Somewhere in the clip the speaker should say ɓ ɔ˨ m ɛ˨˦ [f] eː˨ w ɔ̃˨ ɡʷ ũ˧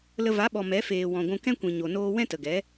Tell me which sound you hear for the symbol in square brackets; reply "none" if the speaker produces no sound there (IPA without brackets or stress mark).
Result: f